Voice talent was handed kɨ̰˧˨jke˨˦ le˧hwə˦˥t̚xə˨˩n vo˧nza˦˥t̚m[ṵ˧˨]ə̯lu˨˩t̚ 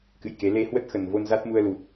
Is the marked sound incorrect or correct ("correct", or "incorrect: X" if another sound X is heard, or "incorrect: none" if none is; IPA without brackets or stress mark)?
incorrect: u˧